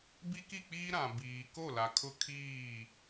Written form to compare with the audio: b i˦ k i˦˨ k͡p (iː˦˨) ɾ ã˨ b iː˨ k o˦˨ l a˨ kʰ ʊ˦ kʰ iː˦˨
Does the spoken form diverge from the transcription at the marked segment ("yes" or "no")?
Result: yes